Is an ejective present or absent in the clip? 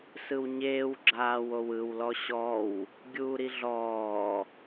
absent